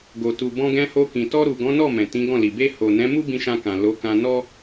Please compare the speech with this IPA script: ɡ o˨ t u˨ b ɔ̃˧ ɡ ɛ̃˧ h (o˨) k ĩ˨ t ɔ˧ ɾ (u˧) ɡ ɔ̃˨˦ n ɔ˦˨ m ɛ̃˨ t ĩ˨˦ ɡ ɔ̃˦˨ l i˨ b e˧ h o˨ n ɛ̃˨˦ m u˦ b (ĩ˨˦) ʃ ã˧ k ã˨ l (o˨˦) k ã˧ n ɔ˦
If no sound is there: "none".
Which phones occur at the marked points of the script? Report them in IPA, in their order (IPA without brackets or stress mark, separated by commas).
o˧, u˨, ĩ˧, o˨˦